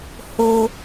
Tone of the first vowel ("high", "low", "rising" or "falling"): low